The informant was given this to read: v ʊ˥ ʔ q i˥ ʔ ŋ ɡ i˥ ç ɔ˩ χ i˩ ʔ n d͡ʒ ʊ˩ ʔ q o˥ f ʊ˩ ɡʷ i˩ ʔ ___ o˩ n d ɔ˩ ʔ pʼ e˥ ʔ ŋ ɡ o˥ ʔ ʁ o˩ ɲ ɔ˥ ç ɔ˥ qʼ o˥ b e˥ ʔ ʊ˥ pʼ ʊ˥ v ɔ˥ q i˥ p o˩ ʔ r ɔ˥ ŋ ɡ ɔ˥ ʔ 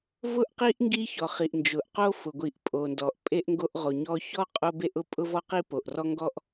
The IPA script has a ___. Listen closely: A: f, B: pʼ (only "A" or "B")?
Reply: B